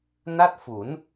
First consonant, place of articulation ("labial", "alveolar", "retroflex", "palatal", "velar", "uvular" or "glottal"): alveolar